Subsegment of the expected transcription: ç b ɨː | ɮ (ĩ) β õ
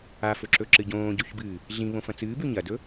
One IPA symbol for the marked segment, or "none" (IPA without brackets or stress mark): ĩ